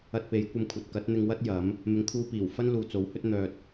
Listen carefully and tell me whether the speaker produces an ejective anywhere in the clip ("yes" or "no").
no